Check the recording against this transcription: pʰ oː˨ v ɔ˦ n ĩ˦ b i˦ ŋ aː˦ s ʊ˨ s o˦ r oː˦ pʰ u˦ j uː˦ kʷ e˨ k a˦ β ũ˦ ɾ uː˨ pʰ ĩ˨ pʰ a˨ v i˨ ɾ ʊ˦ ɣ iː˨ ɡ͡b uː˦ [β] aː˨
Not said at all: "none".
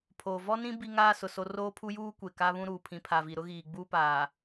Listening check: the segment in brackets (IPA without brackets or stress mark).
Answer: p